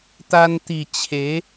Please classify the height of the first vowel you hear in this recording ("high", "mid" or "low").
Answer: low